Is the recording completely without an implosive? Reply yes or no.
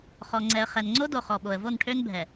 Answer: no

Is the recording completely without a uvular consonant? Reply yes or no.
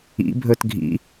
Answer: yes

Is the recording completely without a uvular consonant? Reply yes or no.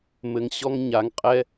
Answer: no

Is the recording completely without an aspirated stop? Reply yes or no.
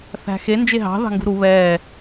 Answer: yes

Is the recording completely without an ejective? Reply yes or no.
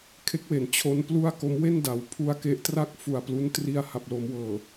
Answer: yes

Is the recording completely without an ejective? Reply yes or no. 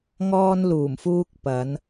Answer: yes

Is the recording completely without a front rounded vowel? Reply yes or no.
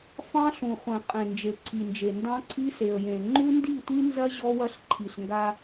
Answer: yes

